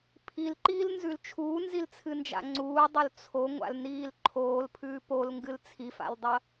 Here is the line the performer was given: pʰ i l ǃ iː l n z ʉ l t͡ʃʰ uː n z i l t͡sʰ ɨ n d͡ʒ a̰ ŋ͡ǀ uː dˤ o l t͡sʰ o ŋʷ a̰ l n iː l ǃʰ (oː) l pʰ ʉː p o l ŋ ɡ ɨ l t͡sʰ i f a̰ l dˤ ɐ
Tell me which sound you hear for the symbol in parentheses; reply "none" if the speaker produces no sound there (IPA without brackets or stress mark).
oː